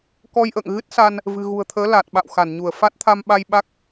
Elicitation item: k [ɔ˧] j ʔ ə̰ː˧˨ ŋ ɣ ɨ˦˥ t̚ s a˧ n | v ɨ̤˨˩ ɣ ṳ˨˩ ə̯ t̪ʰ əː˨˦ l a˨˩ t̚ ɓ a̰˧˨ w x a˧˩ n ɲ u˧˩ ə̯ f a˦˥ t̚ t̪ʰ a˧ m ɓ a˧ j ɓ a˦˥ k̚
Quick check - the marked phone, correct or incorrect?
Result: correct